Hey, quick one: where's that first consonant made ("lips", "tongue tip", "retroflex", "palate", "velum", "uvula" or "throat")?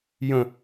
palate